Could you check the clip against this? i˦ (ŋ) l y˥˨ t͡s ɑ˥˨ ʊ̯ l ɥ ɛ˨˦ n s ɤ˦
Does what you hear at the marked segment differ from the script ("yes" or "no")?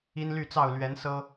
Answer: yes